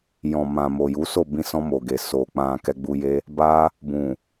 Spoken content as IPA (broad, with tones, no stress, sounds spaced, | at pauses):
j ɔ̃˨ m ã˨ m o˨ j u˨˦ s o˦˨ b ĩ˧ s ɔ̃˧ m o˨ ɡ e˨ s o˨ k͡p ã˨ k ɛ˧ ɡ͡b u˧ j e˦ | b a˧ | b ũ˨